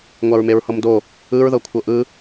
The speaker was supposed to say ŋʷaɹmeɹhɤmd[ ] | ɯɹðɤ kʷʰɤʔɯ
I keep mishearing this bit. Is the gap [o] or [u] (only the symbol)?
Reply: o